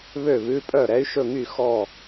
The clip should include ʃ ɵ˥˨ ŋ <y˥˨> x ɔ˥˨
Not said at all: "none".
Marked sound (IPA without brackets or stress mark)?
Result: y˥˨